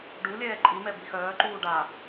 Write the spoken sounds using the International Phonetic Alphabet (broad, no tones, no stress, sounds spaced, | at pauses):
ɖ u lʲ ɛː ǃʼ i m ɛ b i x œː ǃ uː ɖ a